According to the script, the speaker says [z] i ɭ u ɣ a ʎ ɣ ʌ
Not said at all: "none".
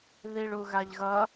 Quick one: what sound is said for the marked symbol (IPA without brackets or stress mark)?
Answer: ð